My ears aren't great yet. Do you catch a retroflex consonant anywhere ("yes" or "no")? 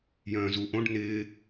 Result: yes